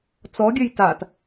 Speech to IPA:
t͡s ɔ ɡʲ ɘ j t a t

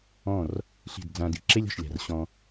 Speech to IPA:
ɔ̃˦˨ r | ɬ i̤˦˨ d d͡z ã˧ d i˨ ǁ e˦ lʲ ɔ̤˨ ʃ lʲ a̤˨ r ɕ ɔ̃˧

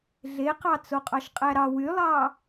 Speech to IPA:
ɮ e q ɑ t͡s o qʼ ɑ ʃ qʼ æ ɾ ɑ w y lˠ ɑː

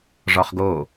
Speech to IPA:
ʐ ɒ χ ɡ o

